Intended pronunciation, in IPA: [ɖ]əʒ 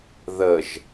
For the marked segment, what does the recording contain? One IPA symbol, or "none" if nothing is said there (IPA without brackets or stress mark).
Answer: ð